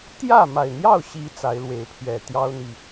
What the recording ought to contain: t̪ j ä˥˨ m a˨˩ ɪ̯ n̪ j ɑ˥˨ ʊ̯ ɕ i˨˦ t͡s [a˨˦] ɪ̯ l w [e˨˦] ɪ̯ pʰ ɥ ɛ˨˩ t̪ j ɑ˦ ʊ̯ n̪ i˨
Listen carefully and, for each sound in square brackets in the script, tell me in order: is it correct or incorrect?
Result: correct, correct

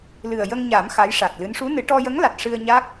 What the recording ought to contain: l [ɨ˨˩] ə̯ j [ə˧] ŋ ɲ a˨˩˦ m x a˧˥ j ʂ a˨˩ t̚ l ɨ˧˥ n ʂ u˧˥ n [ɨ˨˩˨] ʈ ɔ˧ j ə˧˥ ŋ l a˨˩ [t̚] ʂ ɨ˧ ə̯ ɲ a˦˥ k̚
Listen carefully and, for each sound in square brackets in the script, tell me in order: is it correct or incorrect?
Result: correct, correct, incorrect: ɨ˨˩˦, correct

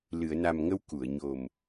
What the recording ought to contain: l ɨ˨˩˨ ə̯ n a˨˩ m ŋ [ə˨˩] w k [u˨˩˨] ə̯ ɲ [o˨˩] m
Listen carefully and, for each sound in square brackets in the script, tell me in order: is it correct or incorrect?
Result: incorrect: ə˧, correct, correct

